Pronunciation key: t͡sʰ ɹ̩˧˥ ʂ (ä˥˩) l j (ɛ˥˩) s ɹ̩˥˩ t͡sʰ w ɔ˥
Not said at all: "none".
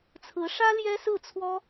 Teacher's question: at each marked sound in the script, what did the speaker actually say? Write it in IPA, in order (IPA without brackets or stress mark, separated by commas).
ä˥, ɛ˥